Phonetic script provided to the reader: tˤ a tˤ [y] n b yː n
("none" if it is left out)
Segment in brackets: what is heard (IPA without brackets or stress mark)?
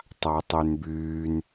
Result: y